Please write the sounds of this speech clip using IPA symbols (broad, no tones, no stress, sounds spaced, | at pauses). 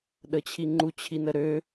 ɗ ə t͡ɕʰ i ŋ͡ǃ u t͡ɕʰ i n ə ɾ ø